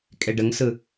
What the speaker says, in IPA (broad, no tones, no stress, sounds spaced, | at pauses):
kʼ e ɖ ə ŋ s ɯ